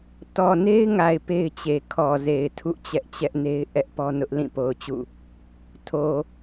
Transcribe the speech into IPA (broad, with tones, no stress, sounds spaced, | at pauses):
t ɔ˨ n e˦ ɪ̯ ŋ a˨ ɪ̯ p e˦ ɪ̯ t͡ɕ e˨ kʰ ɔ˨ z e˨ ɪ̯ tʰ ṵ˦˨ t͡ɕ ɛ˦ ʔ t͡ɕ ɛ˦ ʔ n e˦ ɪ̯ ʔ ɛ˦ ʔ p ɔ˦ n ʊ˦ ʔ l ĩ˦˨ p o˨ ʊ̯ t͡ɕ ṵ˦˨ | tʰ o˨